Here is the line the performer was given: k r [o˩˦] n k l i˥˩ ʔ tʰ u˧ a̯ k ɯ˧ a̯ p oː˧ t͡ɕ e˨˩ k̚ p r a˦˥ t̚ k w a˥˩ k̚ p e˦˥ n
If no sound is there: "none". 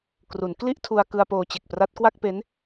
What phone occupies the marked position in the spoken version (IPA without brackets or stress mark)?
u˩˦